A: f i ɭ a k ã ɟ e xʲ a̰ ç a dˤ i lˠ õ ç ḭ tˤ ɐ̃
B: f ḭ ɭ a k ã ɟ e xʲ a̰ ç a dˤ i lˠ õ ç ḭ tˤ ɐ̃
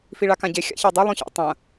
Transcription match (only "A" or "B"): A